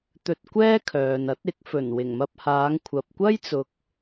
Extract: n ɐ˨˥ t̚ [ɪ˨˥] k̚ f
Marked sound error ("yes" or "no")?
no